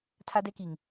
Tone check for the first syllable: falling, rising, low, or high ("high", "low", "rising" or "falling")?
high